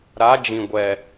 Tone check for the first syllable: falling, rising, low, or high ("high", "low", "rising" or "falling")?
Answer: rising